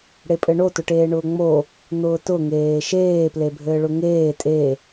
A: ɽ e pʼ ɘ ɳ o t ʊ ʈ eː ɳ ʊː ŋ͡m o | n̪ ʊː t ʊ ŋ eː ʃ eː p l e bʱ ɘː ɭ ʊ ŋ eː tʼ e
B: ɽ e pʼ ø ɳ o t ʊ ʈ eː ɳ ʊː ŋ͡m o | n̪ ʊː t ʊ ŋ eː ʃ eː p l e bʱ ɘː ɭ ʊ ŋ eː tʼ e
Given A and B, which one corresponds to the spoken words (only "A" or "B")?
A